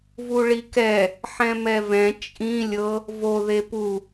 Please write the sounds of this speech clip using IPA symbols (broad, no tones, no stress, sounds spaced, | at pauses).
v u ɭ i k ɛ | ħ ɛ̃ m ɛ v ɛ̃ t͡ʃʼ ĩ lʲ ɤ | v o ð e p u